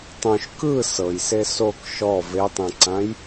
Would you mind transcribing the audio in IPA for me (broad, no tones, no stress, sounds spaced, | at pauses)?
tˤ õ ʃ k ɯ s ɤ j s e s o k ʃ ɔ v e tˤ ẽ ǀ ã j